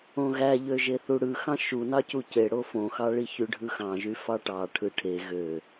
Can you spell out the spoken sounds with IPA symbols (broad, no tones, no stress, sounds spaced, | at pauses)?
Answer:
õ ɣ æ ʎ ø ʒ e θ u ɽ ɯ x ɑ̃ ʃ u n ɑ c u c e ɽ o f õ x ɑ ɭ i ç y ɖʱ ɯ x ɑ̃ ʒ y f ɑ ʈ ɑ ʈʰ ɯ ʈʰ e ɣ ø